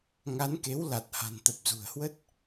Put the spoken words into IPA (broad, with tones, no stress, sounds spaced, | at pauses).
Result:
ŋ a˨˦ n k e˨˦ w l a˨˩ t̚ h a̤˨˩ n t̪ ə˨˩ p̚ z ṳ˨˩ ə̯ h w ə˦˥ t̚